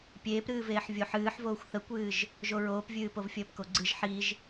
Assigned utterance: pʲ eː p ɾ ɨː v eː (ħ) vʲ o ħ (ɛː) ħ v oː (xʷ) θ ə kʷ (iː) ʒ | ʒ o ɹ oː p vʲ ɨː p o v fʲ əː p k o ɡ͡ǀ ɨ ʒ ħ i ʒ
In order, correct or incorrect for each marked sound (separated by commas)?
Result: correct, incorrect, correct, incorrect